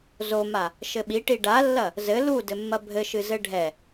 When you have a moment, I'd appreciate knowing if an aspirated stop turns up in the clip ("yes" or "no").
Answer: no